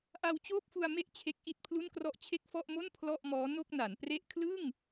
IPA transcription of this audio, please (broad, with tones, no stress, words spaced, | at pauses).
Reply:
ʔa˧wt͡ɕoː˥˩p̚fu˧a̯ me˥˩ʔt͡ɕʰe˦˥k̚ ʔi˦˥t̚pʰlu˥˩nkrɔ˥˩ʔ t͡ɕʰe˥˩k̚fɔ˥˩ʔmo˥˩n pʰlɔ˥˩ʔmɔː˦˥ no˥˩k̚na˩˦npre˥˩ʔ kʰlɯ˥˩ŋ